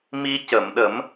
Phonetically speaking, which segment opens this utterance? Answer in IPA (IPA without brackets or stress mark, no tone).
m